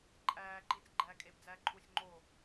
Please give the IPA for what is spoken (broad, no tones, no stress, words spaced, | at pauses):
ǃʼæː ǃiːt͡sɡ͡ǃæːkʼeb d͡zæːǃʰusʲ ŋ͡ǃo